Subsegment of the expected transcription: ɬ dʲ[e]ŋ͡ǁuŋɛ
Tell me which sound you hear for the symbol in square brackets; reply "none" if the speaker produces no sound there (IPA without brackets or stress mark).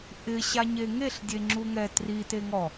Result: e